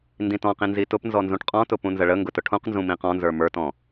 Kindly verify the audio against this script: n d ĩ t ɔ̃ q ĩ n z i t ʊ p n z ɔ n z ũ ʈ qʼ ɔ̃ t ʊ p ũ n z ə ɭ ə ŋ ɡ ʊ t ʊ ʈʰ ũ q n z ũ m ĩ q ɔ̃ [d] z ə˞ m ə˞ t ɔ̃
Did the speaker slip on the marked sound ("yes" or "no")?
yes